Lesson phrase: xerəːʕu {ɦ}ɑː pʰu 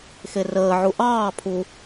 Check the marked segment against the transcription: incorrect: ʔ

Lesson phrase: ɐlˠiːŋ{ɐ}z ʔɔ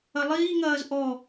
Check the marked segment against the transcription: incorrect: ɐː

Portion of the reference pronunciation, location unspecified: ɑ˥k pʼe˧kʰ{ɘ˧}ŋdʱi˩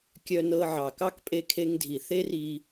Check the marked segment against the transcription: incorrect: e˧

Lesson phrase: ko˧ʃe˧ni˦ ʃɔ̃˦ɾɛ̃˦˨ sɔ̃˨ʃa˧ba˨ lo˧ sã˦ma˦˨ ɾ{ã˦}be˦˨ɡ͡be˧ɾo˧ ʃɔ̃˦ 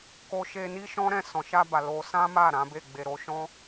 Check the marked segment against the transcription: incorrect: ã˨˦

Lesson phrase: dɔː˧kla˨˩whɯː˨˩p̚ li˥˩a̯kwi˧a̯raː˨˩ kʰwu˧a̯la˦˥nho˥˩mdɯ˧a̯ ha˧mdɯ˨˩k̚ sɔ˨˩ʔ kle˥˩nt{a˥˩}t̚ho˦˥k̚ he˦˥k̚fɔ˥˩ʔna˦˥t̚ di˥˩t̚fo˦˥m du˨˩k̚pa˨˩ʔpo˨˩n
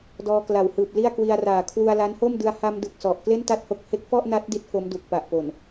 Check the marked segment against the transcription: correct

